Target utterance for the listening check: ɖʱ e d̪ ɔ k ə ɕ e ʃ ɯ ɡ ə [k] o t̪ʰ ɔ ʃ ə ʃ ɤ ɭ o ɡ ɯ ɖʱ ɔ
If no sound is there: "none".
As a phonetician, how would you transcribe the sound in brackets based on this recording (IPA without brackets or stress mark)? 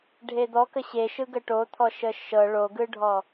ʈ